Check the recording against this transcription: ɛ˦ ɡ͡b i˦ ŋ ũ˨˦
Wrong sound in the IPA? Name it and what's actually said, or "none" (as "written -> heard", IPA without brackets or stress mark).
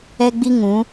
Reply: none